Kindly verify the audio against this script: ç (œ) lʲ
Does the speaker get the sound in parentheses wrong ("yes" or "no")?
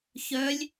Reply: no